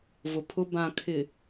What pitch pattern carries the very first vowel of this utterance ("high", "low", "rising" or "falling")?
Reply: low